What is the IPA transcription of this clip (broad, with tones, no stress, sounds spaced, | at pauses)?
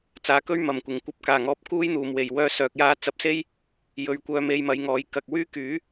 t͡s aː˨˧ k ɵ˥ ɥ m ɐ˨˩ m kʷ ɪ˨˩ ŋ kʷ ɐ˧ p̚ k aː˨˩ ŋ ɔː˨˥ p̚ k uː˥ j n̪ uː˨ m w e˨˩ j w œː˧ s œː˨ k̚ j aː˧ t͡s ɐ˨ p̚ s e˥ j | j ɵ˨˧ ɥ kʷ œː˧ m e˧ j m ɐ˨˧ j ŋ ɔː˨˧ j k ɐ˨ k̚ w yː˥ k yː˨˥